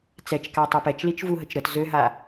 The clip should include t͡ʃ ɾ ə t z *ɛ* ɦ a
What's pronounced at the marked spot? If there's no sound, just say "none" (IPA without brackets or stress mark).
ø